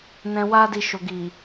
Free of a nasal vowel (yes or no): no